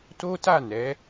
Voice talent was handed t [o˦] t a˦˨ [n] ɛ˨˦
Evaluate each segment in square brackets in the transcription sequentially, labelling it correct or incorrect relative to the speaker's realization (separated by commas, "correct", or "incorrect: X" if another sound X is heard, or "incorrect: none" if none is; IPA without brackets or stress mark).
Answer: correct, correct